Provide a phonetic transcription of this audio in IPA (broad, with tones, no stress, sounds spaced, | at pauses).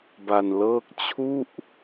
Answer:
b a˧ n l ɤː˥˩ k̚ t͡ɕʰ u˥˩ ʔ